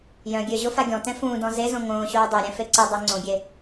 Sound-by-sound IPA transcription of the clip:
j œ̃ ɡʲ ø ʑ o f a ɡʲ ɔ̃ t ɛ̃ f ũː d ɔ̃ z e z õ ŋ õː ɕ oː dˤ œ ɾʲ ɛ̃ f e ǀ ə dˤ ø ŋ͡ǀ õ ɡʲ e

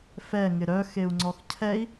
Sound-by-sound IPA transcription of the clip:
f ɛ ŋ ɪ ɾ œ x e u̯ ŋ͡ǀ ɔ x cʰ ɛ i̯

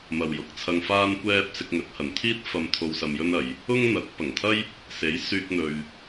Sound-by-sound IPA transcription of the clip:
m ɐ˨ w j ʊ˨˥ k̚ t͡sʰ ɐ˧ ŋ f aː˥ n kʷ ɛː˥ p̚ s ɪ˧ k̚ ŋ ɵ˨˥ t̚ h ɐ˨ n t̪ʰ iː˥ t̚ f ɐ˧ m t̪ʰ o˧ w s ɐ˧ m j ɵ˥ n ɐ˨˧ j | ʊ˥ ŋ n̪ ɐ˨˥ t̚ p ɐ˨˩ ŋ t̪ʰ ɐ˥ j | s e˨˥ j s yː˧ k̚ n̪ ɵ˧ ɥ

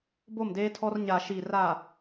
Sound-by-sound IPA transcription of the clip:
b o˦˨ m d eː˦ tʰ ɔ˦ r ɲ a˨ ʃ i˨ r a˨

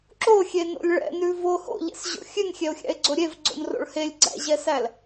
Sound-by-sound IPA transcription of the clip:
ǁ o xʲ e n o̰ lʲ ɭ ɛ̰ n ʉ v o h o̰ ʎ ɛ̰ s ʑ o̰ xʲ ʉ n xʲ ɛ o̯ xʲ æ̰ e̯ ɡ͡ǀ o ɾʲ e v ɡ͡ǀ o̰ n r o̰ ɭ h e lʲ ɡ͡ǀ æ̰ ʑ ɛ s æ l

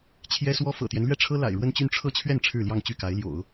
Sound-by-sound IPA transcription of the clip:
t͡ɕʰ j ɛ˥ s w ɔ˥ f ɤ̰˨˩ t̪ j ɛ˦ n l ɥ ɛ˥˩ ʈ͡ʂʰ ɤ˥ l a̰˨˩ ɪ̯ ɻ w ə˥˧ n t͡ɕ y˥˧ n ʈ͡ʂʰ ɤ˥˧ t͡ɕʰ ɥ ɛ˥˧ n ʈ͡ʂʰ ɻ̩˥˧ l j ɑ˥˧ ŋ t͡ɕ y˥˩ k a˧˥ ɪ̯ l j o̰˨˩˦ ʊ̯

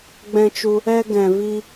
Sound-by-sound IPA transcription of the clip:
ɡ͡b ɛ̃˧ t͡ʃ u˧ | ɛ˦ ɡ ɛ̃˨ v i˧

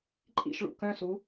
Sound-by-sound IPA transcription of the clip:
ǃʼ ḭ ʃ ɭ ṵ k œ̃ s u

